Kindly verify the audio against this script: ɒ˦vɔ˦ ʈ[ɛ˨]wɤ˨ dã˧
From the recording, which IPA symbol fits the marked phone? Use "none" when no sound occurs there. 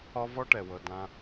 ɛ˨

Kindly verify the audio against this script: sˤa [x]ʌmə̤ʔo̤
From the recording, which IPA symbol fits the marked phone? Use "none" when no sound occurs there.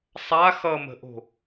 x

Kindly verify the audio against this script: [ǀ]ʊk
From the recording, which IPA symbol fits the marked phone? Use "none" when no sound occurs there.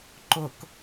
ǃ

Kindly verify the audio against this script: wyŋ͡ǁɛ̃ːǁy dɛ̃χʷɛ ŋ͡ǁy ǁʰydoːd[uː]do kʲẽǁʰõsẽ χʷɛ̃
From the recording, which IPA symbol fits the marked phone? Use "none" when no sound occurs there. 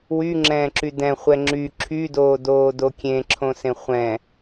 oː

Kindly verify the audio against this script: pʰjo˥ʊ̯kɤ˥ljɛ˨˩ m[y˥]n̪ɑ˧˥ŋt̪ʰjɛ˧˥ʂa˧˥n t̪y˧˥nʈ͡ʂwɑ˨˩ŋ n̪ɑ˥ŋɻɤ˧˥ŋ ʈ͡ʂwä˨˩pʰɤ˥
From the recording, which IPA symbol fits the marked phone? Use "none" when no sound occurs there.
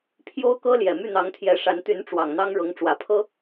y˥˩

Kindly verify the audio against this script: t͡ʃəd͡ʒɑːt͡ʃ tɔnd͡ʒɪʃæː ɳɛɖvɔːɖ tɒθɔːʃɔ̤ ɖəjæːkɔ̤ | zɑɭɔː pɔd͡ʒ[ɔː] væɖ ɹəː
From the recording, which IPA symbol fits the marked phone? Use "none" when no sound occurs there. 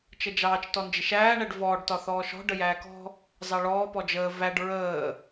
əː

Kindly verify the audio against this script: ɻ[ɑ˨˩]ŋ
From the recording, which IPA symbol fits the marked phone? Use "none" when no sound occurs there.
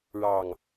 ɑ˨˩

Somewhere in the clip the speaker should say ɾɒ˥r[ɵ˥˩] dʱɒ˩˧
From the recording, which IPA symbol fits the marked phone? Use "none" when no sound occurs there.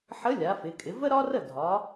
ə˥˩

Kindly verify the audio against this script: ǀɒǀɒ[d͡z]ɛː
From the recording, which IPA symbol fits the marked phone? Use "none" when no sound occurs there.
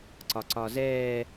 z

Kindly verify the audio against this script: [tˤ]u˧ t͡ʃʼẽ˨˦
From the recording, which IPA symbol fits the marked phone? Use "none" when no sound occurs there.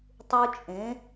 tˤ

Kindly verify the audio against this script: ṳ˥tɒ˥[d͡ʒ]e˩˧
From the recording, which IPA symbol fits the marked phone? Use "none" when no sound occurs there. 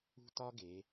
ɡ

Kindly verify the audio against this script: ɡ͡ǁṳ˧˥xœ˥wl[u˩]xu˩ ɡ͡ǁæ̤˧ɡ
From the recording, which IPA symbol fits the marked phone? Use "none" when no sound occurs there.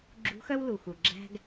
u˩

